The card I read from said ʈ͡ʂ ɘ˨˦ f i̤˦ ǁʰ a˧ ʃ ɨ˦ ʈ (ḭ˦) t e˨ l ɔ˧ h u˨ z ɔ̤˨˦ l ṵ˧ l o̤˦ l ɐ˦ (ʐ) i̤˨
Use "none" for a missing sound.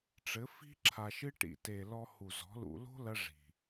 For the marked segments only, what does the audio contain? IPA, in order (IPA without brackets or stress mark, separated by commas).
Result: ḭ˨, ʐ